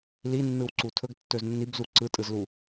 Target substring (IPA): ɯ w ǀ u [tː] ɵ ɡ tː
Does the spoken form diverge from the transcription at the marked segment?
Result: yes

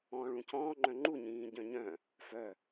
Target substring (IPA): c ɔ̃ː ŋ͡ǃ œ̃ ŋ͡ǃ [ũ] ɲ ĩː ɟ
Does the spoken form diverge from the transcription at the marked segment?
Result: yes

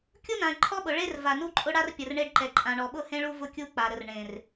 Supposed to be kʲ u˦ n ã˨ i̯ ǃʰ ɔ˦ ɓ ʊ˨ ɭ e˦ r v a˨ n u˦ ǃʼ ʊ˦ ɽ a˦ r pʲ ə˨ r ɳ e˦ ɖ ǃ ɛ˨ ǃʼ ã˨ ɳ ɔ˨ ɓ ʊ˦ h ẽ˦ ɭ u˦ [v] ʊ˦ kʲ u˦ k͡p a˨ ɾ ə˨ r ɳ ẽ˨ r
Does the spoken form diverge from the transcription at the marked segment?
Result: no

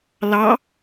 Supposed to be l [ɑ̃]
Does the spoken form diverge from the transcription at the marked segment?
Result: yes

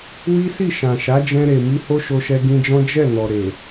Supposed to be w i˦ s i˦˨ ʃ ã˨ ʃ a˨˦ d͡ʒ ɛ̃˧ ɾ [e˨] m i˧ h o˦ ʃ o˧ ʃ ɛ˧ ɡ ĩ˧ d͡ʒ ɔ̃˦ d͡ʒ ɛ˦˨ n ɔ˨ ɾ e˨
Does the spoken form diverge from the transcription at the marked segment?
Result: no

